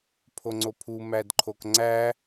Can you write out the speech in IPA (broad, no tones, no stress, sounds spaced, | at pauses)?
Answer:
pʰ o ŋ͡ǀ o pʰ u m æ d ǃʰ o k ŋ͡ǀ æ